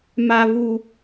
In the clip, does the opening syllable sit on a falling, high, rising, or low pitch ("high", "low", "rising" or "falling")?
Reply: high